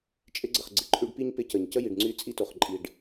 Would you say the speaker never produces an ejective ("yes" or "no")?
no